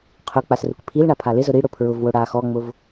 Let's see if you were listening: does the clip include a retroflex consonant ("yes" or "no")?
yes